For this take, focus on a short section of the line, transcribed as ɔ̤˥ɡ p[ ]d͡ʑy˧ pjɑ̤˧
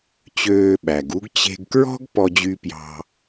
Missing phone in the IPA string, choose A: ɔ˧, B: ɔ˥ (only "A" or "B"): A